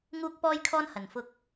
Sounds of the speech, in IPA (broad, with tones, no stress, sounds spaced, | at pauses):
ŋ uː˥ k̚ p ɔː˥ j kʰ ɔː˥ n h ɐ˨˩ n f ʊ˧ k̚